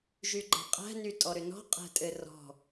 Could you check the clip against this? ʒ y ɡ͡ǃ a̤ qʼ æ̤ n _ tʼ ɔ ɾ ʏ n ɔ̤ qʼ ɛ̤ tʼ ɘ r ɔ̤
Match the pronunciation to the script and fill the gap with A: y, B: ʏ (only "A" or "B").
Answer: A